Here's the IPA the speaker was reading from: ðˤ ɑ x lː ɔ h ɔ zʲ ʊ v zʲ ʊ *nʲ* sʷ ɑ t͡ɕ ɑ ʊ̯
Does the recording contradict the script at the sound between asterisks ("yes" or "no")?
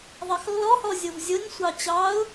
no